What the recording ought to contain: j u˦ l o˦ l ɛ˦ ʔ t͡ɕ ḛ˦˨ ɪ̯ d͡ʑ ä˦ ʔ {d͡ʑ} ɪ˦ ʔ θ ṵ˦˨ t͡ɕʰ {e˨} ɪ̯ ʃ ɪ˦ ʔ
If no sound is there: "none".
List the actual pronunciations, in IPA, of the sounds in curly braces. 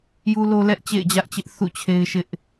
t͡ɕ, e˦

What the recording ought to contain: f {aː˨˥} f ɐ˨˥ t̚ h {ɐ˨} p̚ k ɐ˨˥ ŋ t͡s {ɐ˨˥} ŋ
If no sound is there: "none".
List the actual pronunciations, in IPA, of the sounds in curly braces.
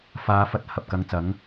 aː˨˧, ɐ˨, ɐ˨˥

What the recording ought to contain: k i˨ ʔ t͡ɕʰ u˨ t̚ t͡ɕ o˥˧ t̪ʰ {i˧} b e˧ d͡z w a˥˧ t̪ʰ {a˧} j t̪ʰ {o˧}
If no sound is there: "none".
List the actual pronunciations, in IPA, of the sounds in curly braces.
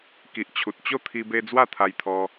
i˧, a˧, ɔ˧

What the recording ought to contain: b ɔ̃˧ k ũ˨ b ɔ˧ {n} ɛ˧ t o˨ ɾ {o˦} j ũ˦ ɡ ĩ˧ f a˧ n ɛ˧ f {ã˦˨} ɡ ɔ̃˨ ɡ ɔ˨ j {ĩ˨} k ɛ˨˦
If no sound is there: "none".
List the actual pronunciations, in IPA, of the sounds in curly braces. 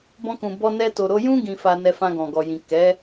n, o˨˦, ã˧, ĩ˨

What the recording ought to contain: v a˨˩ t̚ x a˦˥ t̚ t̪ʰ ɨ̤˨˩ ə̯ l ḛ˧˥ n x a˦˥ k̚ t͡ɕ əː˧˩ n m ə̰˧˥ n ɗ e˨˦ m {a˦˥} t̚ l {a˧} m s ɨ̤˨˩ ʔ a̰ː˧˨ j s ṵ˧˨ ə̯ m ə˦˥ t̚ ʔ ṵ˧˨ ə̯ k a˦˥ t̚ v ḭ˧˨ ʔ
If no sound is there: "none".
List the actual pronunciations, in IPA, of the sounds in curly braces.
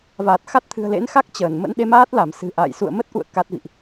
aː˦˥, a˧˩

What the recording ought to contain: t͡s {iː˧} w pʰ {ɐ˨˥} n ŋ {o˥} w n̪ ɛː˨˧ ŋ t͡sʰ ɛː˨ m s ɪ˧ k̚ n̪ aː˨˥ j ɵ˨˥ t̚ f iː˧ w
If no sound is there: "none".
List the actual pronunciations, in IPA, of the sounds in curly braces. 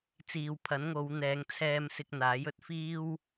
iː˨, ɐ˨˥, o˨˧

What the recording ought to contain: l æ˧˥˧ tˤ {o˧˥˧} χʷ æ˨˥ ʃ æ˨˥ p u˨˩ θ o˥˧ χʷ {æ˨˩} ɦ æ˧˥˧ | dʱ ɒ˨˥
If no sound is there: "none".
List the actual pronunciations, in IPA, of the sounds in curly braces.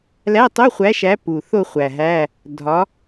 o˧˥˧, æ˨˩

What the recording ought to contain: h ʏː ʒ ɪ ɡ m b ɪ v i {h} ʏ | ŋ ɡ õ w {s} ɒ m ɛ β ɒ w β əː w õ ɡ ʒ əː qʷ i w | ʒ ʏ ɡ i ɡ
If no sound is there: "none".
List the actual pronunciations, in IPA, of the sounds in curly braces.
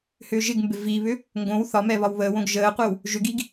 β, θ

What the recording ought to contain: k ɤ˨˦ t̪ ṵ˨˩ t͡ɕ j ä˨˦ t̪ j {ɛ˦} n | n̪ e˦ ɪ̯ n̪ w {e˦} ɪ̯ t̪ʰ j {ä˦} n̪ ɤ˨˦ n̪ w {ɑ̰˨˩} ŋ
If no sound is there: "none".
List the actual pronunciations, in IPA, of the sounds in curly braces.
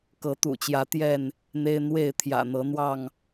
ɛ˥˨, e˥˨, ä̰˨˩, ɑ˥˨

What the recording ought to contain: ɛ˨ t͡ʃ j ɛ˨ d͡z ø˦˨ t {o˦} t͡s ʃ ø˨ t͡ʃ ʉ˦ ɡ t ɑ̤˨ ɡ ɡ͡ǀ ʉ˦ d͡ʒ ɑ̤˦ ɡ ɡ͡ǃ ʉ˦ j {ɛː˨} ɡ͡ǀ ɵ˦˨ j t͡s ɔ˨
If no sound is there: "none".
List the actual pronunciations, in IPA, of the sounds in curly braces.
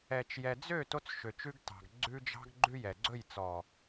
o˦, ɛ˨

